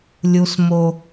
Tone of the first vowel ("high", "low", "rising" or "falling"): high